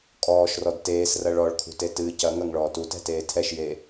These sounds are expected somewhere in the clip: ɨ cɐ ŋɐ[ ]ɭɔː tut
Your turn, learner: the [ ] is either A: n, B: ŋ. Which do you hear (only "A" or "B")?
B